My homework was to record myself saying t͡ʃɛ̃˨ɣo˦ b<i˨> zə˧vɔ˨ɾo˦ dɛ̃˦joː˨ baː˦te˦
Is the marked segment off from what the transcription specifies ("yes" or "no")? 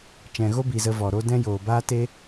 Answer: no